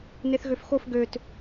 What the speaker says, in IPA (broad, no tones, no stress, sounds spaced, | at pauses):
n e θ ɣ ø f x o f ɡ ø t